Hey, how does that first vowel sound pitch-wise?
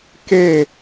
falling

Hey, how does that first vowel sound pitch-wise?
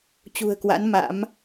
low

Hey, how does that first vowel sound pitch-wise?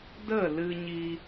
falling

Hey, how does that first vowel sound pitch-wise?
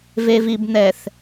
low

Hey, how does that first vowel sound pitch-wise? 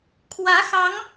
rising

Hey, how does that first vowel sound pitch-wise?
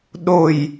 low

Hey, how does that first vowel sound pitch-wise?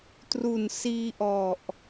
low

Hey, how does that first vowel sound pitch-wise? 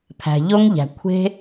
low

